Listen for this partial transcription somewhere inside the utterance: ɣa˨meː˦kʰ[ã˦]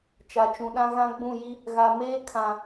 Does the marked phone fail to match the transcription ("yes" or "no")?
yes